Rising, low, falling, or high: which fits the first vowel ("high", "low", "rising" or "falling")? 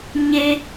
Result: low